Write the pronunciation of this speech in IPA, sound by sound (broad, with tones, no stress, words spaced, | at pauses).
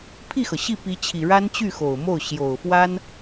pʰi˥˩xɤ˩ɕi˥˩ pi˧˥t͡ɕʰi˨˩ ɻa˥nt͡ɕy˥˩xo˨˩ʊ̯mo˥˩ʊ̯ ɕjo˨˩ʊ̯fwa˥n